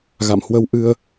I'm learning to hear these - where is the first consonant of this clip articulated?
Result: velum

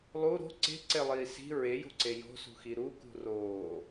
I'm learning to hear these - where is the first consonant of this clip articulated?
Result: tongue tip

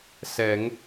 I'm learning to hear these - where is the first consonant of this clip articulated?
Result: tongue tip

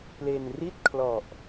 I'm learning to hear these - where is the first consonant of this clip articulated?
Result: lips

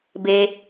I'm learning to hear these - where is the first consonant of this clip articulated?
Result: lips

